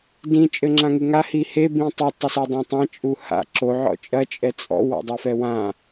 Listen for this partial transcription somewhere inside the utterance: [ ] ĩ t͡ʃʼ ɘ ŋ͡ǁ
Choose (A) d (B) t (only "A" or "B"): A